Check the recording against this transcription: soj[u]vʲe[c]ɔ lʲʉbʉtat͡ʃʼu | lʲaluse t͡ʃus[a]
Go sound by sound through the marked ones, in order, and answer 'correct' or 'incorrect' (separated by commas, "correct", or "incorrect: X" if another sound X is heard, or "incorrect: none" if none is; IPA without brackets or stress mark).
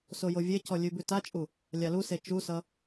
incorrect: o, correct, incorrect: ʌ